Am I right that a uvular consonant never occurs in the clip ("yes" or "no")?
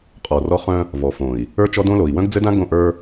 no